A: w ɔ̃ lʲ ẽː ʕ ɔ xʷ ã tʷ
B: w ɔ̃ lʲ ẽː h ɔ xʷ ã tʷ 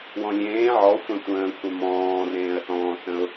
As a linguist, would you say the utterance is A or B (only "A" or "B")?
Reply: A